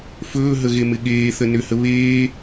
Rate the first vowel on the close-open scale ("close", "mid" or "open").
mid